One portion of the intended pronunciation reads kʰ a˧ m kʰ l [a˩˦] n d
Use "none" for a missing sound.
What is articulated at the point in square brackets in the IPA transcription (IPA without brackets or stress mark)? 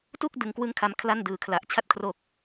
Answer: a˥˩